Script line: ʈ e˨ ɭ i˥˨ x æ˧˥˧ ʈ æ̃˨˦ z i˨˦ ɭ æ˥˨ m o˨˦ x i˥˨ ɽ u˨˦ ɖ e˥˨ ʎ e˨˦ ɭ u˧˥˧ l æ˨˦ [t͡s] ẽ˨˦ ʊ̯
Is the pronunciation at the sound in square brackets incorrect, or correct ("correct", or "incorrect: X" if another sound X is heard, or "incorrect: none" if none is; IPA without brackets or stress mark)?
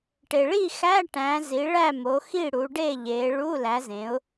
incorrect: z